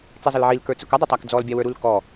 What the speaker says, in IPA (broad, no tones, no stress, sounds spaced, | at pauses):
t͡s i zˤ ə l ʕ i l k ə˞ t͡s ʊ k ʌ dˤ ʊ tˤ æ k d͡z ɔ l bʲ ɑ w ə˞ ɾ u l k ɔ